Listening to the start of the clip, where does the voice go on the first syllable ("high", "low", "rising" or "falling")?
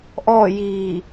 falling